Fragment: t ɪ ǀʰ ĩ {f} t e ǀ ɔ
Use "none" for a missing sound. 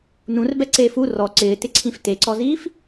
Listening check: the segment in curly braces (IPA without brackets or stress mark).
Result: f